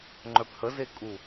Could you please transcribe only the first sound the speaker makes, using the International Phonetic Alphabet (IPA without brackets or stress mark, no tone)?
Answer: ŋ͡ǃ